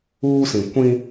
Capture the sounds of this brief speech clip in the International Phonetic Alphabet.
uː˦ s ĩ˨ kʷ ĩ˦

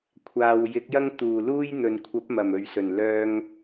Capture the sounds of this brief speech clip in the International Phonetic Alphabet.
kʷʰ aː˨ w j ɪ˨˥ k̚ j ɐ˥ ŋ t̪ uː˨˩ l uː˥ j n̪ ɵ˨ n kʷʰ ɐ˨˥ p̚ m ɐ˨˩ m ɵ˨ ɥ s ɵ˨˩ n l œː˧ ŋ

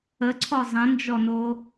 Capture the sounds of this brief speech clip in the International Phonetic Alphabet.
ə ǀʰ ɔ zˤ ə̃ n d͡ʒ ɔ n o

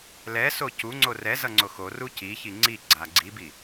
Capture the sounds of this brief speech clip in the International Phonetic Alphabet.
l ɛ s o c u ŋ͡ǀ o r ɛ z ʌ ŋ͡ǀ o x o r u c i ç i ŋ͡ǀ i ɡ͡ǀ a ɡ͡ǀ i b i

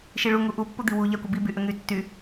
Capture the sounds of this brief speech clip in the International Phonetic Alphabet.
ʃ i ɭ u ŋ u ʔ u pː u d̪ i w u ʎ a kʷ ə b i b y ʔ ə ŋ y tː y

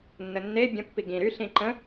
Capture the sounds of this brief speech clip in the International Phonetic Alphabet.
nː ə nː e bʲ ə̃ pː i ɡ ĩ ɾ y ɬ ĩ ǃ ə̃

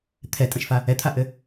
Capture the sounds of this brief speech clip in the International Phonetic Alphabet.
t̪ʰ ɛ tʼ ə̃ ʃ f a | ɛ t̪ʰ a ʔ ɘ

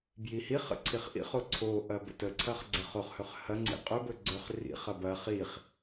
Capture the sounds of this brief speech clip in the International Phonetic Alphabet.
b j i h i χ ə̰ ǀʰ i χ ʔ ḭ χ o ǀʰ o ʔ ɐ b ə̰ t ə ǀʰ ɐ χ ɡ͡ǀ ɐ χ o χ h ɵ χ h ɐ ŋ͡ǀ ḭ qʼ ɵ b ɵ ɡ͡ǀ ɵ χ r ḭ χ ɐ b ɐ χ i χ

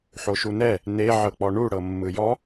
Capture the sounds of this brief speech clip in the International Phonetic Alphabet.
ħ o ʃ u n ɛ | n e ʕ ɤ k͡p ɔ ɳ u ɽ ɤ mː ɯ j ɔ

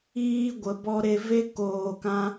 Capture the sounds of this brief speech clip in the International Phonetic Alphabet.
iː˧ ɡʷ ə˨˦ b ɔ˦ ɾ e˦ v e˦ k oː˧ k ã˦

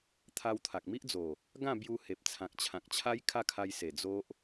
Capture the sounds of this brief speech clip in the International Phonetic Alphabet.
t̪ʰ a˧ w t̪ʰ a˨ k̚ m i˦ ʔ d͡z o˨˩ | ɡ ã˥˧ b j u˧ h e˨ p̚ t͡sʰ ã˨ k̚ t͡ɕʰ ã˨ k̚ t͡ɕʰ a˦ j kʰ a˥˧ kʰ a˧ j s e˨˩ d͡z o˦ ʔ

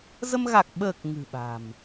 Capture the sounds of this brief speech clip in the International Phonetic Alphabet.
z ə˧ m ɣ a˨˩ k̚ ɓ əː˨˩ k̚ ŋ ɨ̤˨˩ ɓ a̤˨˩ m

